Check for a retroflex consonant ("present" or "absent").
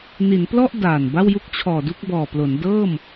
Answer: absent